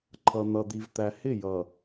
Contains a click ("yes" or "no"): yes